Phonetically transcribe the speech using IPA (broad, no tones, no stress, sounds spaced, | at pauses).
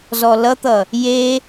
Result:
z ɔ l ʌ t̪ ʌ | j e